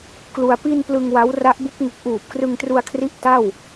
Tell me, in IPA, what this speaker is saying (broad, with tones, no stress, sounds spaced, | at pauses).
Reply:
k l u˧ a̯ p i˧ n p l ɯ˧ ŋ w a˦˥ w r a˦˥ ʔ b u˦˥ k̚ ŋ u˦˥ k̚ ʔ uː˨˩ p̚ k r ɯ˧ ŋ t r u˧ a̯ kʰ r i˦˥ ʔ t a˥˩ w